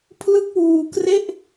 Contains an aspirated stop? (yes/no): yes